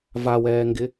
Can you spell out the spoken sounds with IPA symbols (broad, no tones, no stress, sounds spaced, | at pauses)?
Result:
v a w ɛː ŋ ɡ ɪ